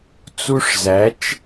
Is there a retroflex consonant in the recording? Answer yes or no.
yes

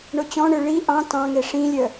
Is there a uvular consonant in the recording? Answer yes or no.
no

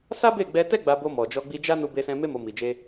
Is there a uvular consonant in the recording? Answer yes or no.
no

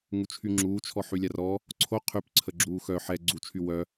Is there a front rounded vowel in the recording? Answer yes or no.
yes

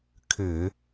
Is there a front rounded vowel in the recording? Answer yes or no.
yes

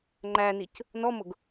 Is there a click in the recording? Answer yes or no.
yes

